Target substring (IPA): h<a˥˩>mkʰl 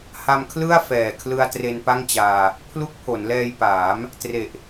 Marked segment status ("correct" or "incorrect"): incorrect